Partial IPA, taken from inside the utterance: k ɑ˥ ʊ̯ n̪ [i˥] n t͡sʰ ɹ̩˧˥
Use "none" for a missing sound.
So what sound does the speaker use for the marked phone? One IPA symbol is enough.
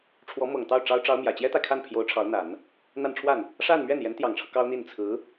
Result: i˥˩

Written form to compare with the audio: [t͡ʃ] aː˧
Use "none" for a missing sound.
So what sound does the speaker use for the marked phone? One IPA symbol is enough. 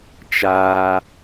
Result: t͡ʃ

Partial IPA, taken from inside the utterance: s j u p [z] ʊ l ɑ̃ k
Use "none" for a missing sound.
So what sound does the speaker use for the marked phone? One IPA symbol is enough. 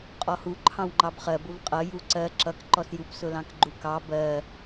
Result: s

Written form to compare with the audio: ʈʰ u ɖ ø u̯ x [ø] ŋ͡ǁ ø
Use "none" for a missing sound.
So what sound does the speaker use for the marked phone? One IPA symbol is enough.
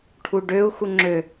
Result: u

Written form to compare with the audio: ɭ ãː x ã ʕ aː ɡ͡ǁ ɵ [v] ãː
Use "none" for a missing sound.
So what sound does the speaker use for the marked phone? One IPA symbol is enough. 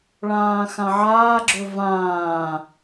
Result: v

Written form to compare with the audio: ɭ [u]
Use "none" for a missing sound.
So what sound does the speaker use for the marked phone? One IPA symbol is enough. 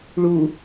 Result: u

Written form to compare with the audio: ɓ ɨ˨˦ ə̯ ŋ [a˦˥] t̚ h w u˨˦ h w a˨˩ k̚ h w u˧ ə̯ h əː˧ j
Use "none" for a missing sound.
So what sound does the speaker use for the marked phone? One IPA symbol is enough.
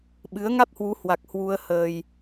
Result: a˦˥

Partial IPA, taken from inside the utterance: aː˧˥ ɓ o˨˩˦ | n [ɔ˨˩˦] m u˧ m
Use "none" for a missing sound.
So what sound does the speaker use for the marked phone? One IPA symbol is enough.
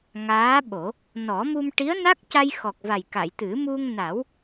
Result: ɔ˨˩˦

